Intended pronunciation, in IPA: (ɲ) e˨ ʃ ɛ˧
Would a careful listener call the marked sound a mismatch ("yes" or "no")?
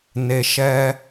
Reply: yes